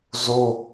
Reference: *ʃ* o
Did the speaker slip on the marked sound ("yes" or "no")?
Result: yes